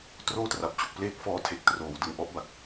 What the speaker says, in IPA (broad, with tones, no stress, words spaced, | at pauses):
troː˥˩tra˨˩p̚t͡ɕu˨˩k̚ pleː˥˩k̚fɔː˦˥ tʰe˨˩k̚troː˩˦wdɯ˨˩ŋ ʔɔ˦˥ʔba˨˩k̚